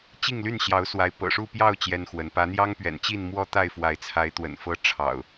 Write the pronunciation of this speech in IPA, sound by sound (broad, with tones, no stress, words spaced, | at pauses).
t͡ɕi˥˨ŋly˥˨nɕjɑ˨˦ʊ̯swa˨˦ɪ̯ pɤ̰˨˩ʂu˥˨pjɑ˥˨ʊ̯ t͡ɕjɛ˦nxwə˨˦n pä˨˦n̪jɑ˦ŋpɥɛ̰˨˩nt͡ɕi˥˨n mwɔ˦t̪a˥˨ɪ̯fwa˨˦ɪ̯t͡sʰa˨˦ɪ̯ t̪wə̰˨˩nfɤ˦ ʈ͡ʂʰɑ̰˨˩ʊ̯